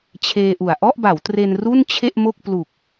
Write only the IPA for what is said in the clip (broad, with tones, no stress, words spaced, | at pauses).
t͡ɕʰeː˧ʔu˨˩a̯ ʔɔ˥˩ʔba˩˦wtre˧n ru˥˩n t͡ɕʰe˥˩ʔmo˥˩k̚ plu˨˩k̚